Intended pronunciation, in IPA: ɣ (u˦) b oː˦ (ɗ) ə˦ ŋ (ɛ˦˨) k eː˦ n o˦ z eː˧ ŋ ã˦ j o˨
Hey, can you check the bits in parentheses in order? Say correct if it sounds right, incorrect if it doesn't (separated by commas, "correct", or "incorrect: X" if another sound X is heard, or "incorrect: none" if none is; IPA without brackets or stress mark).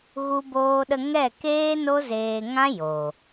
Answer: correct, correct, correct